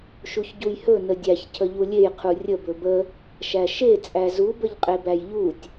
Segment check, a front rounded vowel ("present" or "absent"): absent